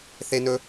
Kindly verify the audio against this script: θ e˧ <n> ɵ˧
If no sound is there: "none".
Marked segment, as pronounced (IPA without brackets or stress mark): n